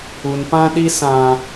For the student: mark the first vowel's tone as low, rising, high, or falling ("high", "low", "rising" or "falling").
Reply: low